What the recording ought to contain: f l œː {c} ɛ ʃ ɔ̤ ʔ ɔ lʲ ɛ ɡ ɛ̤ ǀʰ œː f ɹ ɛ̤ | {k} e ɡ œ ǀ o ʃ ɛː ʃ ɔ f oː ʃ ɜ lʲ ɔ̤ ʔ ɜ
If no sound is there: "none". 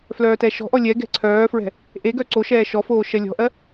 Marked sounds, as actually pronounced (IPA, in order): t, ʔ

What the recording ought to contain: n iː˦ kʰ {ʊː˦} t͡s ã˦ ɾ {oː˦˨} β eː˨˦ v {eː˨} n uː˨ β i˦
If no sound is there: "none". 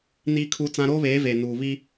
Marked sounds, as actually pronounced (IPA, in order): uː˦, oː˦, eː˨

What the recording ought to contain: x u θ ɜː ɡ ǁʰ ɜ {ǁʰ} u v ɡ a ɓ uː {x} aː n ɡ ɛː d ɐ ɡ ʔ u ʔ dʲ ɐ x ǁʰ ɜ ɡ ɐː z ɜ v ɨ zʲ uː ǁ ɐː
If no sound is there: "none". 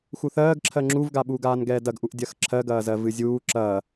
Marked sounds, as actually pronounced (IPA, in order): ŋ͡ǁ, ɡ

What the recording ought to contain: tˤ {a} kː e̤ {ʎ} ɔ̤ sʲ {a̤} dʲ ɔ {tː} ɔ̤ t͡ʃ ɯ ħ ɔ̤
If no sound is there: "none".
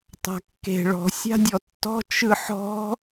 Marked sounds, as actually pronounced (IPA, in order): a̤, ɭ, a̤, tː

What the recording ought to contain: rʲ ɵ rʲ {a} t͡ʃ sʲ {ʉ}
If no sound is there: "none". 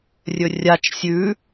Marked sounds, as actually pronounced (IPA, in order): a, ʉ

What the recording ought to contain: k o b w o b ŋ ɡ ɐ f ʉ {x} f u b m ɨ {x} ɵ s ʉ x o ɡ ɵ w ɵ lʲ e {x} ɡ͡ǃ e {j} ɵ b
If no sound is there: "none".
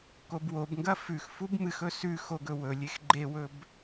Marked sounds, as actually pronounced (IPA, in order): x, x, x, w

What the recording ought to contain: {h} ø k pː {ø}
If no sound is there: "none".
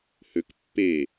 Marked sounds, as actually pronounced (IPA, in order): h, e

